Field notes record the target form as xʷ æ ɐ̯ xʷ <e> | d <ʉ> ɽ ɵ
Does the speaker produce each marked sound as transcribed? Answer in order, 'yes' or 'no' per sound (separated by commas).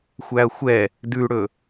no, yes